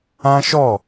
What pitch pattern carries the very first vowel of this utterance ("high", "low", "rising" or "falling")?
high